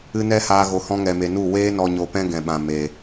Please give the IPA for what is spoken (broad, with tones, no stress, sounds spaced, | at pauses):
ɨ˧ n ɛ˦ h aː˧ ɣ o˨ h ɔ̃˧ ŋ ɛ˨ m e˨ n u˦˨ w eː˦ n ɔ˧ ɲ o˧ p ɛ̃˦ ɡ ɛ̃˨ ɓ ã˨ m e˨